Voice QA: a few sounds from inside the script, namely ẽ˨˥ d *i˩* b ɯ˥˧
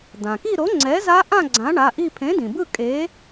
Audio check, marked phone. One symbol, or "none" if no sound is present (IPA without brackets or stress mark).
ĩ˩